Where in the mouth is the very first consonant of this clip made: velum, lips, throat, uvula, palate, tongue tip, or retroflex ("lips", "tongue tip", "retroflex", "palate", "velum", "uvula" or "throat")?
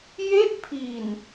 palate